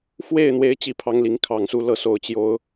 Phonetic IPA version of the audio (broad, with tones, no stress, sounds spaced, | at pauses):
f w e˥˩ ɪ̯ n̪ w e˧˥ ɪ̯ t͡ɕ i˥˩ pʰ ɑ˥ ŋ l i˧˥ ŋ kʰ ɑ˨˩ ŋ s u˥˧ l ɤ˥˩ s o˧˥ ʊ̯ t͡ɕ j o˥ ʊ̯